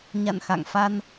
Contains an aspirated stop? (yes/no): no